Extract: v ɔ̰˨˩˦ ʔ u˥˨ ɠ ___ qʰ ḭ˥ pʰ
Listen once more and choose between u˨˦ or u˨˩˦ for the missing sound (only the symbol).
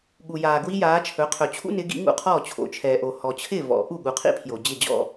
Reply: u˨˦